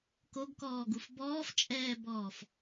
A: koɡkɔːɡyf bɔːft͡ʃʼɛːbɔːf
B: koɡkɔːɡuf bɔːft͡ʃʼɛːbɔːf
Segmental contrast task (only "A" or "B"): B